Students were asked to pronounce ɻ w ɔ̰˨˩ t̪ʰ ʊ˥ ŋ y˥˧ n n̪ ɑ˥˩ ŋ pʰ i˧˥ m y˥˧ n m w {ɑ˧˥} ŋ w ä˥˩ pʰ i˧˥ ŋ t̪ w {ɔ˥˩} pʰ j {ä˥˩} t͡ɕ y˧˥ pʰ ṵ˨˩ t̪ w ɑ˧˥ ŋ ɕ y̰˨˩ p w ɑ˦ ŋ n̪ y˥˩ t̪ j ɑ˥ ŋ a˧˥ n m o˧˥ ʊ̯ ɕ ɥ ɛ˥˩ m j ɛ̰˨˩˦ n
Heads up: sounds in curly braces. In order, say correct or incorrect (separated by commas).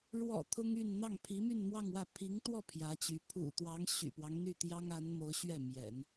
incorrect, correct, incorrect